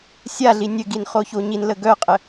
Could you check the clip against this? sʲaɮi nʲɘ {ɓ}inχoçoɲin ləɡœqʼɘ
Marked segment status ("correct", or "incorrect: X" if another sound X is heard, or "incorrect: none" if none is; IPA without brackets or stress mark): incorrect: ɡ